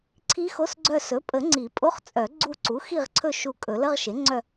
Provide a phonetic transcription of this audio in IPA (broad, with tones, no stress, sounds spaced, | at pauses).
ǀʰ i˦˥ x o˧˥˧ s ɡ͡ǀ œ˦˨ s ɵ˩˥ pʼ ə˨˩˦ ŋ͡ǀ i˨˩˦ pʼ o˧˥˧ χ t͡sʼ œ˨˩˦ ɡ͡ǀ u˦˨ ǀ u˩˥ x i˦˨ ʁ ǀʰ ɵ˦˨ ʃ u˦˨ kʼ ɵ˨˩˦ l ə˧˥˧ ʁ ʃ e˩˥ ŋ͡ǀ œ˦˨